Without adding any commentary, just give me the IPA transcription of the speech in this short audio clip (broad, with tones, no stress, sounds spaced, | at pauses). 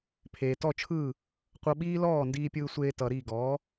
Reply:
pʰ eː˩ t ɔ˥˩ t͡ʃʰ ɯː˥˩ | qʷ ʌ˧ ɓ iː˥ l ɔː˥˩ n d iː˧ pʲ ɯː˧ sʷ eː˧ t ʌ˩ ɾ iː˥˩ ɡ ɔː˩˥